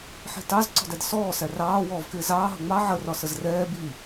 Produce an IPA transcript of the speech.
ħ i̤ t ɑ z ǀ ɔ̤ d æ d s ɔː s æ r ɑː w ɔː v k ɪː z ɑː ɦ ʌ ŋ͡m ɑ ʕ ə r ɒ s ə z r ɛː b i

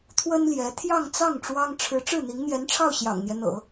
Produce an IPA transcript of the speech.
t̪ʰ w ə˥ n l j ɛ˧˥ t̪ʰ j ɑ˥˧ ŋ t͡s ɑ˥˩ ŋ ʈ͡ʂ w ɑ˥ ŋ ʈ͡ʂʰ ɻ̩˧˥ ʈ͡ʂ ɻ̩˥˩ n̪ i˧˥ ŋ n̪ j ɛ˧˥ n ʈ͡ʂʰ ɑ˥˩ ʊ̯ ɕ j ɑ̰˨˩ ŋ n̪ j ɛ˦ n̪ ɤ̰˨˩˦

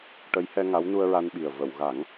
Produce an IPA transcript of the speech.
ʈ ə˧˥ j h ɛ˧ ŋ a˧˥ w n u˧ ə̯ ɹ a˧ n ɓ i˨˩ ə̯ v ə˨˩˨ w ɣ a˨˩˦ ŋ

